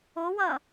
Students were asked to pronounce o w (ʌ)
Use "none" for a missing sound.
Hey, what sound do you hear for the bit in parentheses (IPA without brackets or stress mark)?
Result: ʌ